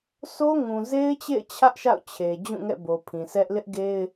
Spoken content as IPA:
sʰ o˦ ŋ ũ˨ z e˦ ɪ̯ t͡ɕ ḛ˦˨ ɪ̯ t͡ɕʰ ä˦ ʔ ʃ a̰˦˨ ʊ̯ t͡ɕʰ e˨ d͡ʑ ũ˦˨ ŋ ɛ̰˦˨ b o˨ pʰ ĩ˨ s ɛ˦ ʔ l ɪ˦ ʔ ɡ e˦ ɪ̯

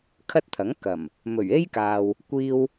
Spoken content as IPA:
kʰ ɐ˥ t̚ t̪ʰ ɐ˨˥ ŋ k ɐ˨˩ m | m ɵ˨˩ ɥ e˥ j k aː˨ w | kʷ iː˧ w

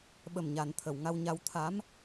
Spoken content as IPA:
ɓ ə˨˩ m ɲ a˨˩˨ n t̪ʰ ə˨˩˨ w ŋ a˧ w ɲ a˧ w t̪ʰ a˧˥ m

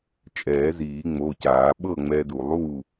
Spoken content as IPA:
t͡ʃʼ ɛː˨˩˦ z iː˨˩˦ ŋ͡m o˩˧˩ c aː˨˩˦ ɓ ɤ˥˨ ŋ͡m ɛ˧ d u˨˩˦ lˠ u˥˨

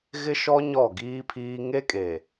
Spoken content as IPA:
ɣ ɪ˦ ʃ ɔ˦ ɲ ɔ˦˨ ɡ iː˦ pʰ iː˦ ŋ e˦ kʼ eː˨

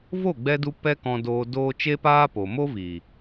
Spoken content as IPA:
v o˦˨ ɡ͡b ɛ˧ d u˧ p ɛ˦ k ɔ̃˧ d oː˧ d oː˦ t͡ʃ e˦ p aː˦ p oː˨ m o˦ v i˨

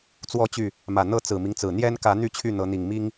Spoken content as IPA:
t͡s w ɔ˨˦ t͡ɕ y˨˩ | m ä˨˩ n̪ ɤ˥˨ t͡s ɹ̩˨˩ m i˦ ŋ t͡s ɹ̩˨˩ n̪ j ɛ˦ n k ä˨˦ n̪ y˦ t͡ɕʰ y˥˨ n̪ ɤ˨˦ n̪ i˨˩ ŋ m i˦ ŋ

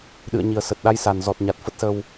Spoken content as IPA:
ɗ ɨ̰˧˨ ə̯ ɲ i˨˩ ə̯ s ə˨˩ t̚ ɗ a˧ j s a˨˩ n z ɔ˨˩ t̚ ɲ a˨˩ t̚ f ə˦˥ t̚ s ə˧ w

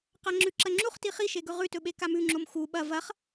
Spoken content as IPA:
q a ŋ͡ǁ ʉ ǁ ɐ ŋ͡ǁ u χ t i χ i ʃ e ɡ ɵ ʁ ʉ t ɵ ɓ e k a m ʉ ŋ͡ǁ o m x u ɓ ɐ v ɐ χ

